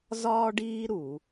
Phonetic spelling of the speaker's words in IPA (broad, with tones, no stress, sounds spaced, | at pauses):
z ɒː˦ ɖ iː˦ ɾ u˧˩˧